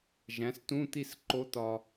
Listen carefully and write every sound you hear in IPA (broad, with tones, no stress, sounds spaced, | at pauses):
ʒ æ̃˩˥ s t ũ˧˥˧ t̪ i˥˨ s ǃ o˧˥ t̪ ɒ˨